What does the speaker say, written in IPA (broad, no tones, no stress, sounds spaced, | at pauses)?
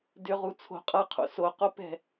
d ʏ ʁ u t͡sʰ o̤ qʼ ʌ qʰ o̰ s o q o p ɛ̤